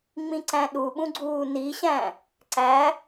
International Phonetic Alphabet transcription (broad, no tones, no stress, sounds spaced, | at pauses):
ŋ͡m ĩ ǀ æ̃ ɗ u ɓ ũ ɡ͡ǀ uː n i ɕ æ̃ | ǀ æ